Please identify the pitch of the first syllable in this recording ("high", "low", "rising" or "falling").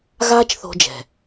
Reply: high